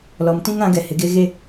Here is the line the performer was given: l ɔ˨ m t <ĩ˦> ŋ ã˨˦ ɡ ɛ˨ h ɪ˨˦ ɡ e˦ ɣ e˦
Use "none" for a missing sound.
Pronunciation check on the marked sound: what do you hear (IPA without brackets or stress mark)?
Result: ĩ˦